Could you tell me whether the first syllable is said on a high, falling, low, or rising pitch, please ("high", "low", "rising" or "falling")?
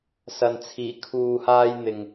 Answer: low